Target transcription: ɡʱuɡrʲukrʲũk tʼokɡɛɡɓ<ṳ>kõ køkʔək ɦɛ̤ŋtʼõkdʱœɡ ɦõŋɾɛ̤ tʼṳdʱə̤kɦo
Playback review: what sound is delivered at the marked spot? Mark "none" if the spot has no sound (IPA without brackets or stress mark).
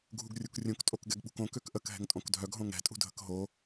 ṳ